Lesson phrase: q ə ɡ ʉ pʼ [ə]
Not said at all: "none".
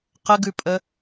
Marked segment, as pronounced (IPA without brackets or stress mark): ə